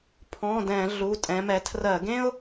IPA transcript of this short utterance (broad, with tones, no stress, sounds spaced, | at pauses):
pʰ ɔ̃˩˧˩ d ɛ̃˧˩˧ ɮ u˩˧˩ tʼ ɛ̃˩˧ m ɛ˩˧ tʰ r ɜ˧˩˧ ɡ ẽ˥ ʊ̯